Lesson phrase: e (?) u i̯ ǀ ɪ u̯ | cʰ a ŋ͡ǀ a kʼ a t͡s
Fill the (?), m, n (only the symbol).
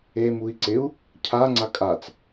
m